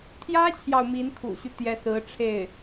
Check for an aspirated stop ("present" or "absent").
present